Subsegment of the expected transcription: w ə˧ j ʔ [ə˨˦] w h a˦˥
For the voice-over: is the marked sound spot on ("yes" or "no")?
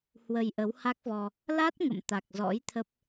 yes